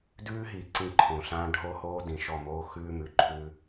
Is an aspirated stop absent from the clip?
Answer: no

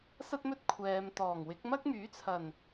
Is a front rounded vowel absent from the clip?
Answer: no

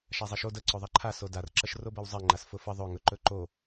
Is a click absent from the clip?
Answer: no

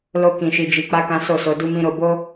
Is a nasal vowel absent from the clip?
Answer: no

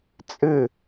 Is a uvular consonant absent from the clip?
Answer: yes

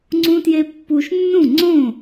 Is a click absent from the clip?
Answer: no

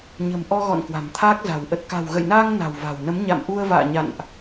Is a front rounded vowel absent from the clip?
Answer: yes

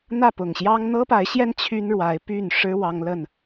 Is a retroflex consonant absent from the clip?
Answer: no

